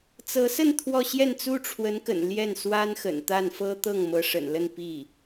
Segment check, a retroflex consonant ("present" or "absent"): present